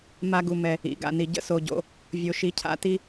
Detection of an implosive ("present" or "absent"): absent